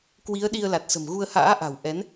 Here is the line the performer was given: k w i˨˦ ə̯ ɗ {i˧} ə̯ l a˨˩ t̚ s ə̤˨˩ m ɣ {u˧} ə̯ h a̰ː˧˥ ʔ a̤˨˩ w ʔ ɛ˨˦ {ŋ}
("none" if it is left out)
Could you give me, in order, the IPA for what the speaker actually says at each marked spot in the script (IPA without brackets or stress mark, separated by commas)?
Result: i˧, u˧, n